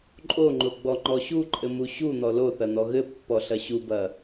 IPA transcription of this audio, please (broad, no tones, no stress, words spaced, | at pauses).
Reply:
ǃʼoŋ͡ǃo ɡ͡bɔŋ͡ǃɔɕuǃʼɘ muɕun̪ɔ loθɐ n̪ɔɣɘpːɔ ɬɐɕubɐ